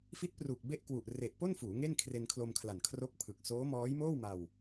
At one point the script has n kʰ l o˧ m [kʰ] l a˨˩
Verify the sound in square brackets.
correct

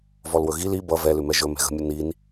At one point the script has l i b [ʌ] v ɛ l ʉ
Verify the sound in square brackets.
correct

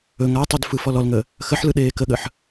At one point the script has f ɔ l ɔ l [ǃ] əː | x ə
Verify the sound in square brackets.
incorrect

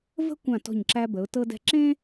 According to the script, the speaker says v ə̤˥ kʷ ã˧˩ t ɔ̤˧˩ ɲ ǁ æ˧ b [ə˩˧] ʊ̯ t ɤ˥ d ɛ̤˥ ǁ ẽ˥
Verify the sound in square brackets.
correct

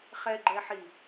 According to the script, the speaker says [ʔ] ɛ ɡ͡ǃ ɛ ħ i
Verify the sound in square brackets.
incorrect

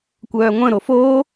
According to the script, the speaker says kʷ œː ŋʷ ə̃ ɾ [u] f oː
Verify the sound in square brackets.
incorrect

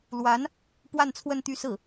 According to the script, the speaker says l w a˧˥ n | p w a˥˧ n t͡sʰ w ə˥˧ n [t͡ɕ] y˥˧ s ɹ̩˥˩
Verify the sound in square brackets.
incorrect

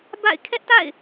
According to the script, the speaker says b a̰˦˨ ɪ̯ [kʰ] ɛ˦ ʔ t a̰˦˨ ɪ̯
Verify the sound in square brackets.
correct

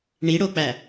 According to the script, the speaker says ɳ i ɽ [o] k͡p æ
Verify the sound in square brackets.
correct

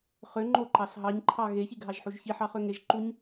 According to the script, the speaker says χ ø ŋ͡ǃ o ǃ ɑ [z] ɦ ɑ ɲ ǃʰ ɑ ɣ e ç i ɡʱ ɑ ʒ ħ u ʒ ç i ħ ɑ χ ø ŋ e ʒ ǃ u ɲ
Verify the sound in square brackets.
incorrect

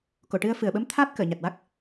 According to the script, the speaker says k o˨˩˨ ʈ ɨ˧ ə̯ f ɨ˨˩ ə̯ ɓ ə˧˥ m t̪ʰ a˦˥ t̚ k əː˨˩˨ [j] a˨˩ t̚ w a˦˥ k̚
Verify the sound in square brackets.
incorrect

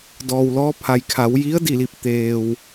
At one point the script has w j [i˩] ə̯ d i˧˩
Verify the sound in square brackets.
incorrect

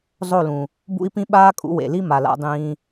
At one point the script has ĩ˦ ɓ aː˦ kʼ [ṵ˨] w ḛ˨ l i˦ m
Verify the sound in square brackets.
incorrect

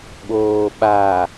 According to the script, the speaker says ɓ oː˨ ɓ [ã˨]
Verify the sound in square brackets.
incorrect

